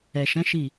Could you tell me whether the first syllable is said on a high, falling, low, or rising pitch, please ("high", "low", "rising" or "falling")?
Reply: low